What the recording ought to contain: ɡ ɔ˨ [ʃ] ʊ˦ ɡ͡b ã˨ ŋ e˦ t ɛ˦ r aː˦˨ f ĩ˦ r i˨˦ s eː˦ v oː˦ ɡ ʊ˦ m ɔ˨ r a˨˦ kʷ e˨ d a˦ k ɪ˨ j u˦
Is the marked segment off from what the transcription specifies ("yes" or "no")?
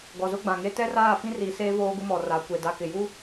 yes